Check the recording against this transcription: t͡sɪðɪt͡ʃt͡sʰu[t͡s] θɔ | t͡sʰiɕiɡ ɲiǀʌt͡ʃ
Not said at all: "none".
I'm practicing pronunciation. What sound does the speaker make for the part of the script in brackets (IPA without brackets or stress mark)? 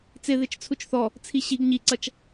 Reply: t͡ʃ